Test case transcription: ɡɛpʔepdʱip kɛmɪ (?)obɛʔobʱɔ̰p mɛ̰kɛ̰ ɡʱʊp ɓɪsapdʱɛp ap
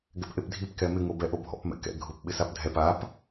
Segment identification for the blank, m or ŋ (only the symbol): ŋ